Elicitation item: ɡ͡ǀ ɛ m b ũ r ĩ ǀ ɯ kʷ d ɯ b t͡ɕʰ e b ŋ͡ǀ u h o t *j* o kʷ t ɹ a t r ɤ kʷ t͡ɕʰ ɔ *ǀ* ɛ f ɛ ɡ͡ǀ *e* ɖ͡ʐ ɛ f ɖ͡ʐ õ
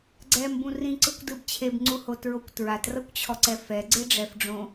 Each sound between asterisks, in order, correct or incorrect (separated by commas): incorrect, correct, correct